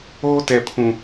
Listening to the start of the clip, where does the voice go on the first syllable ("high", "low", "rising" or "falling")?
high